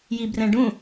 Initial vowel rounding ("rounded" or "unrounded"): unrounded